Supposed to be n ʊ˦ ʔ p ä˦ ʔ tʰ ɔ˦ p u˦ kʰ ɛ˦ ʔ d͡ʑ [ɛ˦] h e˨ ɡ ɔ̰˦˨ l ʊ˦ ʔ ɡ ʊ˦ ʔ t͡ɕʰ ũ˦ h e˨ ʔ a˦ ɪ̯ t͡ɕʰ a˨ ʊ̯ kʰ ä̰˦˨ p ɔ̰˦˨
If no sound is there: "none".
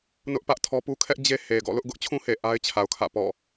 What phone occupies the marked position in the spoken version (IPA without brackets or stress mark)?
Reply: e˦